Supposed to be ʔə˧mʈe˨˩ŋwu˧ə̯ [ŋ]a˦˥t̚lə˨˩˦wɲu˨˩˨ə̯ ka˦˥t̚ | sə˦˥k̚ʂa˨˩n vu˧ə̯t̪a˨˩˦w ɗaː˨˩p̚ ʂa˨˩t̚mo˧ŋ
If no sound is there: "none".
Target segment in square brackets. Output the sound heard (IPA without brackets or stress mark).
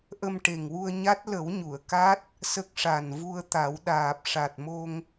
ɲ